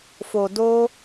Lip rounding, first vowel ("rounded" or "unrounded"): rounded